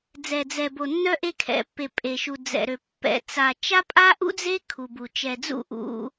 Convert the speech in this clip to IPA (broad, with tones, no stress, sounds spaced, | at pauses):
d͡z ɛ˨ d͡z ɛ˨ b o˨ nː œ˦ ʔ e˦ kʰ ɛ̰˨ pː e˨ pʼ e˨ ʃ u˨ d͡z ɛ̰˨ ɾ ø˨ pː ɛ̰˨ t͡s a˨ t͡ʃ a˦ pʼ a˦ ʔ ṵ˦ d͡z e˦ kʰ u˨ b u˨ t͡ʃ ɛ˨ d͡z ṵ˦˨ ʔ ṵ˦